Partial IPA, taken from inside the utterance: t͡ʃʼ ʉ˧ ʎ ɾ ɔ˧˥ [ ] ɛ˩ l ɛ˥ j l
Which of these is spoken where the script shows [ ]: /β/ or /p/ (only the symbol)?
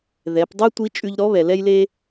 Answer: β